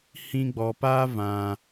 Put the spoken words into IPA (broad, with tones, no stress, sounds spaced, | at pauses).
h ĩ˧ ɡ͡b ɔ˨ p a˦ v ã˨